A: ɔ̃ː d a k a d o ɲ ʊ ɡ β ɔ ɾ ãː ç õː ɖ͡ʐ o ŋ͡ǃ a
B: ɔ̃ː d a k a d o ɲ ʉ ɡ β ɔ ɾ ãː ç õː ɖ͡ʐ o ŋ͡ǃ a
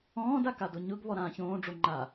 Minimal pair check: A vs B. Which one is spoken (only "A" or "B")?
A